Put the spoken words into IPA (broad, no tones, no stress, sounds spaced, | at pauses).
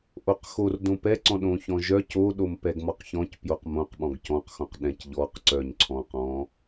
ʔ o q x o r d õ p ɛ ǀ ɔ̃ ɗ õ ç ɔ̃ ʒ œ c o ɗ o m p ɛ ɡ m ɔ q ç ɔ̃ c p j o q m õ q ɓ ɔ̃ ɡ c ɔ̃ q x õ q ɗ ɛ̃ c ʎ ɔ q ǀ œ ɲ ǀʰ ɔ̃ q ɔ̃